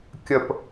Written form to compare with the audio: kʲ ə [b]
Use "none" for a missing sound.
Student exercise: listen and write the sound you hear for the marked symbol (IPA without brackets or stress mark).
p